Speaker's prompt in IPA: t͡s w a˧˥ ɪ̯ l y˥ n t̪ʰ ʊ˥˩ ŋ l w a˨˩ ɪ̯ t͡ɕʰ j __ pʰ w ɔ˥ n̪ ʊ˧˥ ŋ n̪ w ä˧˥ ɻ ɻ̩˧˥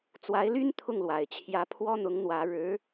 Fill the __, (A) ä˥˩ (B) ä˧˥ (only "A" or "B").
B